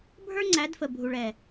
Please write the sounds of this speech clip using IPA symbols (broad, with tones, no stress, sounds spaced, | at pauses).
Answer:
bʱ ə˞˦ ŋ͡ǀ æ˨˦ d f ə˨ bʱ u˨ ɭ ɛː˨